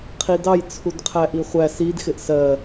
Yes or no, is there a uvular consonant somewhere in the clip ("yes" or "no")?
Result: yes